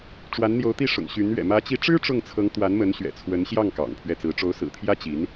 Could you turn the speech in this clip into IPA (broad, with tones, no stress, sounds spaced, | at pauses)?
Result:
ʈ͡ʂ w a˧˥ n n̪ j o˧˥ ʊ̯ t̪ i˥˩ ʂ ʊ̰˨˩ ŋ ɕ y˧˥ n ɥ ɛ̰˨˩ m ä˧˥ t͡ɕ i˧˥ ʈ͡ʂ ɻ̩˥ ʈ͡ʂ ʊ˥˩ ŋ t͡sʰ ɤ˧˥ ŋ t̪ w a˧˥ n m ə˧˥ n ɕ ɥ ɛ̰˨˩ t͡sʰ w ə˧˥ n ɕ j ɑ˥˩ ŋ k ɑ̰˨˩ ŋ pʰ ɥ ɛ˥˩ t͡s ɹ̩˧˥ ʈ͡ʂ o˧˥ ʊ̯ s ɹ̩˨˩ t̪ʰ j ä˥ t͡ɕ i˧˥ n